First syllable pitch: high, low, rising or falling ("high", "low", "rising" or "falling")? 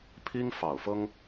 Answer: high